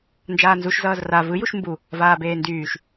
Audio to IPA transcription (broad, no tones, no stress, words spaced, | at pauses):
nd͡ʒaːnzuʃ zʌːzra vɯjuʃ mbu | vaːbeːndyːʃ